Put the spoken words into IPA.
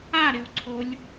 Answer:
a ɾ ɪ w ǀʰ o lʲ

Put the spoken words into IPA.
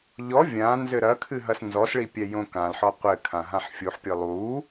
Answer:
ʎ ɔ vʲ ã n z ɘ ɾ ɐ kʰ ɨ ɦ ɐ s n z ɔ s ɭ i pʲ ɛ j õ k ã l ħ ɔ qʷ ɘ kʰ ã ɦ ã ħ fʲ u ħ pʲ ɨ lˠ u

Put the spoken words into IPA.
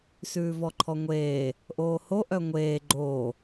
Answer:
s ʉː v ɔ ǃʰ ɔ ŋʷ eː | ʔ oː h o ʔ œ ŋʷ eː ɡ͡ǃ oː

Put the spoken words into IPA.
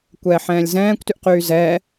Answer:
kʷ ɛː ħ ɛ̃ː lʲ z ɛ̃ː kʷ t y ʔ q yː z ɛː

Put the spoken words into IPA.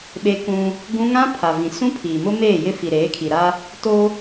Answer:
ɓ e˦ k ũ˦ | ɡ ũ˦ ŋ ã˦ pʰ a˨ v ĩ˨ s ũ˦ pʰ iː˨ m ʊ˦ m eː˦˨ j ɪ˦ f i˨ ɾ eː˨˦ kʰ i˨ ɾ a˦ | t o˦

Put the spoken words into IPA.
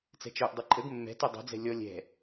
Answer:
t͡s ɛ̤ t͡ʃ œ ʔ dˤ e ǃʼ ə ɡ mː ɛ̤ t y dˤ ɛ̤ d͡z ɛ̤ lʲ ɔ lʲ ɛ̤

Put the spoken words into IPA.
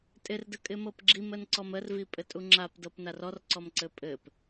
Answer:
tʼ ɪ r d ə kʼ ɪ m ɤ p ɡ͡ǁ i m ə n ǀ ɔ m ə r v i pʼ ɘ tʼ u ŋ͡ǁ a p d ɤ p n a r ɔ r ǀ ɔ m ǀ ɘ pʼ ɘ p

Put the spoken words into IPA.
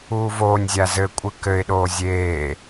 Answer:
uː v oː nʲ zʲ a z ɘ kʷʼ ɨ k ɘ ɪ̯ ɗ oː zʲ eː

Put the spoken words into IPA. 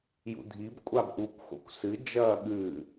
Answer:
j ṵ dʱ i b kʷʼ a b ʔ u kʷ x o̰ kʷ s ɨ d͡ʒ ɐː ɠ ʉ

